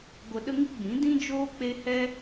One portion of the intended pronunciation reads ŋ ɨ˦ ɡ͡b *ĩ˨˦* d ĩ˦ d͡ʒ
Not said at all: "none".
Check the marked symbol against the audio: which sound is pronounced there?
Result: ĩ˨˦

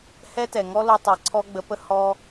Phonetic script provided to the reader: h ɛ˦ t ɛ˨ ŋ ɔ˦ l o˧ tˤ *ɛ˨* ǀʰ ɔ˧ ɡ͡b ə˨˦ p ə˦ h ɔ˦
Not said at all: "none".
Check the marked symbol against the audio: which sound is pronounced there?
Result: ɛ˨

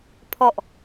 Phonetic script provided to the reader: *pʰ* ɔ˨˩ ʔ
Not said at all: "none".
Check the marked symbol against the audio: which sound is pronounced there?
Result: pʰ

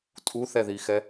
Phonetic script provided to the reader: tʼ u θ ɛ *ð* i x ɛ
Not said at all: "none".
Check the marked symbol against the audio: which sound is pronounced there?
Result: ð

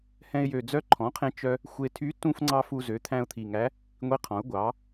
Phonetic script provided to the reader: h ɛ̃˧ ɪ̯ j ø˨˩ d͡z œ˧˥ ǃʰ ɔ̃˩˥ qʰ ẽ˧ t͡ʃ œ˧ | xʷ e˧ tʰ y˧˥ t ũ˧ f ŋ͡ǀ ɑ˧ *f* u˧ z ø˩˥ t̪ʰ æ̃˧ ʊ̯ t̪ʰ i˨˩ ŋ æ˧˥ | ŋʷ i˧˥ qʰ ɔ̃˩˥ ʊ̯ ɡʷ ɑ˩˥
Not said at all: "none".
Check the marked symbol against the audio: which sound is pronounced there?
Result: f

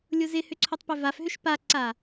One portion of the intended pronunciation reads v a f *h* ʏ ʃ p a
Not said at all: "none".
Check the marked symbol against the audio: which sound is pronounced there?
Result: ɦ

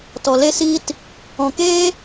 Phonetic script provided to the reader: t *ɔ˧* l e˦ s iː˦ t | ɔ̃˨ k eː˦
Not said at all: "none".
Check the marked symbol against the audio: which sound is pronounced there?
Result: ɔ˨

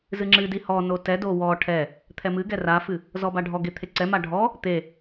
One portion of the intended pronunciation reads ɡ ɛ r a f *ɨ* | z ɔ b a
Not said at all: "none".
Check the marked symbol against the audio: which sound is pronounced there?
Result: ɨ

